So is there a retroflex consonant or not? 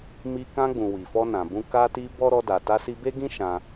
no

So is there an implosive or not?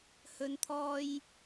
no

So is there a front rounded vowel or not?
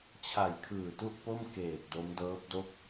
no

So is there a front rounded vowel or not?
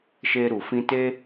no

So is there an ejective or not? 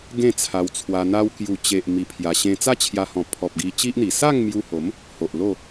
no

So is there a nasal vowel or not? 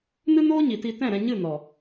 yes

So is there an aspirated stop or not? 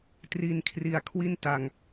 yes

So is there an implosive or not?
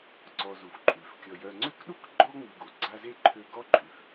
yes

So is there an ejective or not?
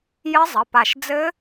no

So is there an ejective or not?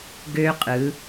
yes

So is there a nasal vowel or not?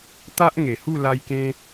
yes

